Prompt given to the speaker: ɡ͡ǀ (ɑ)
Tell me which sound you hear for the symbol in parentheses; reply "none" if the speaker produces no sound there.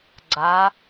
a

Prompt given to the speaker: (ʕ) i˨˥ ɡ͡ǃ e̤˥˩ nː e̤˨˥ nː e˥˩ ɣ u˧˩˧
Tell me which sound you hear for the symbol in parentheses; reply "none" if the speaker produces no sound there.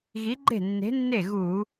ɣ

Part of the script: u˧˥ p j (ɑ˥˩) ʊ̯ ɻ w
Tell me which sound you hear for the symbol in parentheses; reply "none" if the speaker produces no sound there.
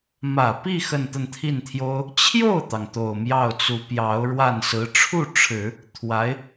ɑ˧˥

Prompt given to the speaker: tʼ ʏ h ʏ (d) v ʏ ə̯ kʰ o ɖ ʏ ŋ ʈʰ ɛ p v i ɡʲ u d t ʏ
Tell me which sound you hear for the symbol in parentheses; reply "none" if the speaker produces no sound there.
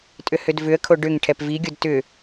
d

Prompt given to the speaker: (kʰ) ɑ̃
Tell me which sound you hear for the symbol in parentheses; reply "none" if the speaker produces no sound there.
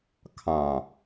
kʰ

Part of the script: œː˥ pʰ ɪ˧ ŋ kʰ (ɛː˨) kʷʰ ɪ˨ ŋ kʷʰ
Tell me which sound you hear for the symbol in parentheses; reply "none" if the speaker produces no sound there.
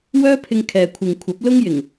ɛː˨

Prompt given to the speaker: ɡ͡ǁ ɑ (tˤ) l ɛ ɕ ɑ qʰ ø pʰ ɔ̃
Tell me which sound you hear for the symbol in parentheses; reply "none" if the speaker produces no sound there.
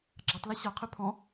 tˤ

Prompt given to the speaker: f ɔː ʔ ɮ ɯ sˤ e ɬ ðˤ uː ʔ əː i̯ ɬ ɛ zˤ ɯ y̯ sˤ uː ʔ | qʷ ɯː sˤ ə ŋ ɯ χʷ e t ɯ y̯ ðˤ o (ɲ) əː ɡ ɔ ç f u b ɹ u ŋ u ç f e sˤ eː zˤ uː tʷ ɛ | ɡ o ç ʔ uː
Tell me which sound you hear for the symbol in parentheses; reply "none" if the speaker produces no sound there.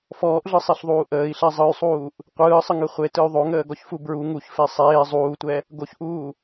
ŋ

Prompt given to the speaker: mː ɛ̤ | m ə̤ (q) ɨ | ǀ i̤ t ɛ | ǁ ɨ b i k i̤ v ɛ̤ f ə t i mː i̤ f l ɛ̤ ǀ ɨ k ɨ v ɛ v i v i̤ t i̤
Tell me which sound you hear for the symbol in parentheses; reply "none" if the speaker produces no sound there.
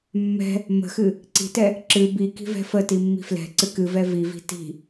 x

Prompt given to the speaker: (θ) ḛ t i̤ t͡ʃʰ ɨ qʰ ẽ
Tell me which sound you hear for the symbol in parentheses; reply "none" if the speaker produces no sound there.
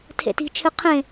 tʰ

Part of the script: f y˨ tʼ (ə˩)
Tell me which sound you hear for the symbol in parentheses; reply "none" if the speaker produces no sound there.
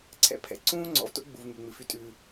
ʉ˩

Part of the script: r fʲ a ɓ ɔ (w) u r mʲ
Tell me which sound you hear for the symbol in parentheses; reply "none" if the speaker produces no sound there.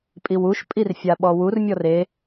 w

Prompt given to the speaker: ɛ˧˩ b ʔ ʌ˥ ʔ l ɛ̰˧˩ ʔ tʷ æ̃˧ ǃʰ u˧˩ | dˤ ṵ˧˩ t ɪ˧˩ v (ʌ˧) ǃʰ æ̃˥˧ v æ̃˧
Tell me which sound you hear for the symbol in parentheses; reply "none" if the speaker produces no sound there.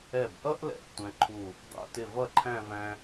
ʌ˥˧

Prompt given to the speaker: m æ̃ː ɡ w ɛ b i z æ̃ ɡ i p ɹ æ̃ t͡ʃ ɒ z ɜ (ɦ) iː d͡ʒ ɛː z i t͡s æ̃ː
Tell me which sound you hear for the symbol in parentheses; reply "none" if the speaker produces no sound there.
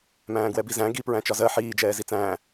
ħ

